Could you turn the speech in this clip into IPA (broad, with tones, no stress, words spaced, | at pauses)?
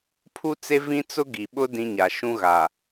pʰu˦t͡se˦ vĩ˦t͡sʊ˦ ɡi˨ɓʊ˦ dĩ˦ɲa˨ ʃũ˦ɣa˨